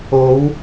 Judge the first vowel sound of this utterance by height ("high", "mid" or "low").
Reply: mid